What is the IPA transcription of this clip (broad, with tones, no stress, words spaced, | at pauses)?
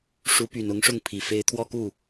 ʂu˧˥py˨˩n ʊ˧˥ŋʂʊ˥˩ŋ pʰi˨˩ fe˧˥ɪ̯t̪ʰwɔ˥˧ku˥˩